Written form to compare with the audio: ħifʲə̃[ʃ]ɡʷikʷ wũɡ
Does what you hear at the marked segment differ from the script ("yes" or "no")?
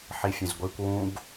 yes